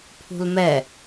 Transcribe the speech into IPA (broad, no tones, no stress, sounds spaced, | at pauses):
pʰ ṳ l m ɛ